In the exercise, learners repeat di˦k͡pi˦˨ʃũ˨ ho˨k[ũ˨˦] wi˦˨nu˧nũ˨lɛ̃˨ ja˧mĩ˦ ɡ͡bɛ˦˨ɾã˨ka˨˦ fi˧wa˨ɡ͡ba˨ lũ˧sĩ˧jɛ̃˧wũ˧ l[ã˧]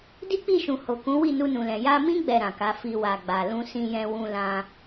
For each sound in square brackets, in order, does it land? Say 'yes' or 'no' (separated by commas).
yes, yes